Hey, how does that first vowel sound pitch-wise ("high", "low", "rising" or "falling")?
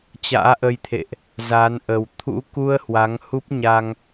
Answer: rising